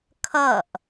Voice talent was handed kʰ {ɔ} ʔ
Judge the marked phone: incorrect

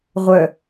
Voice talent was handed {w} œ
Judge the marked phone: incorrect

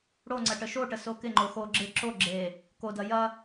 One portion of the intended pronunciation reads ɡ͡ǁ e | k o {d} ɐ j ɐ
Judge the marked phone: correct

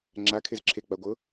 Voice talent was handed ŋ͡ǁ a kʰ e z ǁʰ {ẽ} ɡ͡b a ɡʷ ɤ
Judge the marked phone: incorrect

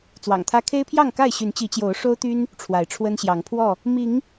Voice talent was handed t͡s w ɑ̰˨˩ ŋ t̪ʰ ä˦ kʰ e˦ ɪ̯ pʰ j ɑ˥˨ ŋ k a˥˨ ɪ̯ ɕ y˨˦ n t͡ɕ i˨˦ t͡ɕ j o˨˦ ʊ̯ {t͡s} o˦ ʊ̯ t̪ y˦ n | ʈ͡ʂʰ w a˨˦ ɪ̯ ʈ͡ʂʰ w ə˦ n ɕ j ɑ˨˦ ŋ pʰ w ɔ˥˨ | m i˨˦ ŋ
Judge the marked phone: incorrect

